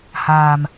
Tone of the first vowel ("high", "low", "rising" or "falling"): low